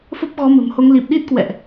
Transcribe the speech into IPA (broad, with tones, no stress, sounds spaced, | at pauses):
f ə˦˥ p̚ ɣ ɔ˨˦ m ə̤˨˩ m h o˨˦ ŋ l i˨˩ p̚ ɗ i˦˥ t̚ k w ɛ̰˧˨ ʔ